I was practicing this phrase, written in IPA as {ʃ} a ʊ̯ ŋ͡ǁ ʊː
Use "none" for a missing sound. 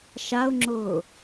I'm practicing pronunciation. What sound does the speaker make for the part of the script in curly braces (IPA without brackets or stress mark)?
ʃ